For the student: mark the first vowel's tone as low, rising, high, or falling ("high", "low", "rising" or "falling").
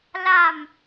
falling